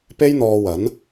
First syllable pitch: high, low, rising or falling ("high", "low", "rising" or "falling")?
high